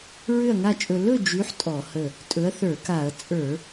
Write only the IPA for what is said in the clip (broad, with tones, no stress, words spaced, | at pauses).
ɹʏ˥˨ɐ̯ŋa˥˨t͡ʃʼɵ˧ lɵ˥˨d͡ʒy˨˥ħ tʼɔ˧˩˧hə˧˩ | tʼɵ˨˥ɐ̯θə˞˧˩˧ka˧˩˧ɐ̯ t͡sʼə˞˧˩˧